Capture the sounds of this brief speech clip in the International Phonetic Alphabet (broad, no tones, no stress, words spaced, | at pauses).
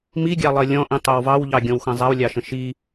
miɡʲɑlˠɜ lʲɔ̃ʔĩtˤɜw vɑwʎɑɡʲɔ̃wxə̃ zˤawlʲɑʃə̃ ʃi